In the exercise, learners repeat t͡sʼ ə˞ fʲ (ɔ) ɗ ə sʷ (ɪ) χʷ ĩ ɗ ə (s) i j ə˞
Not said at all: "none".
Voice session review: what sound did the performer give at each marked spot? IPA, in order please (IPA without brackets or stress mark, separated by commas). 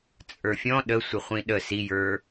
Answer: ɔ̃, ɪ, s